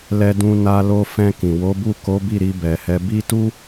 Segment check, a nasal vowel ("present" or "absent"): present